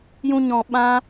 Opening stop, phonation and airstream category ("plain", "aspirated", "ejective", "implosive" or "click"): implosive